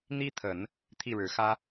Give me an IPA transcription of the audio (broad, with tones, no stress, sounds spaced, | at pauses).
n̪ i˥ t̪ʰ ə˨˩˦ n | t̪ʰ i˥˩ ɻ ɻ̩˨˩ x ä˥